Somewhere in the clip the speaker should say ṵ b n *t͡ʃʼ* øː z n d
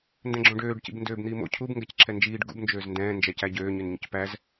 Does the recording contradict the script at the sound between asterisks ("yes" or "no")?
yes